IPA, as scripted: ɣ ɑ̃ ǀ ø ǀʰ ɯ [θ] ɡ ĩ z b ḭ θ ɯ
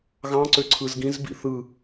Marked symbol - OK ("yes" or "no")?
no